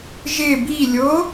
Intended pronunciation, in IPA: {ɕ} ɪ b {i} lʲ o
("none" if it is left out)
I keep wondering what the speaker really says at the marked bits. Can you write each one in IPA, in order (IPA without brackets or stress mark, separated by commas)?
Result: ʒ, i